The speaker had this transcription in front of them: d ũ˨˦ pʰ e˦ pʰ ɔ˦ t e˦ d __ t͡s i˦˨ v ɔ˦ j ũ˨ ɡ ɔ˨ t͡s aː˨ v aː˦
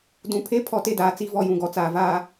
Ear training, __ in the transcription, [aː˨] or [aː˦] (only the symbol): aː˨